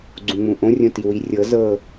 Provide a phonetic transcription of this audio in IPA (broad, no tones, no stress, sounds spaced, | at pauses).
ɡ͡ǀ ũ ŋ͡m ũ ʔ õ rʲ õ t i w i rʲ ɤ z ɤ